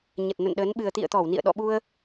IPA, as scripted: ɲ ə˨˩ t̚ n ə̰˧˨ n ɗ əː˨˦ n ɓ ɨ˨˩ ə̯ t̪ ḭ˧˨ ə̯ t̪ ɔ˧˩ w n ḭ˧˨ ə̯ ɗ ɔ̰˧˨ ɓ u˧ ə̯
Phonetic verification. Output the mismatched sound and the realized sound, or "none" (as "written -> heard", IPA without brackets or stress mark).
none